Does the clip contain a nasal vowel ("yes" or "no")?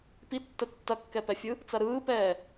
no